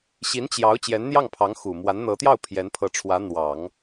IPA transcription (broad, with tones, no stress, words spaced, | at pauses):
ɕi˧˥nt͡ɕjɑ˧˥ʊ̯ t͡ɕjɛ˧˥nn̪jɑ˥˩ŋpʰɑ˧˥ŋ xu˨˩ mwa˧˥nn̪ɤ˧˥t̪jɑ˥˩ʊ̯ pʰjɛ˧˥npʰɤ˧˥ʈ͡ʂʰwä˧˥ n̪wɑ˨˩˦ŋ